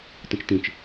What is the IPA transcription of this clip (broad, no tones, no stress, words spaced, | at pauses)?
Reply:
tə̃t͡ʃtĩt͡ʃ